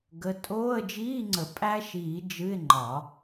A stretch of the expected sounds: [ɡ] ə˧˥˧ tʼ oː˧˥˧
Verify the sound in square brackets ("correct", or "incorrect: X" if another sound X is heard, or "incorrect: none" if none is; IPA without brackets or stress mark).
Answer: correct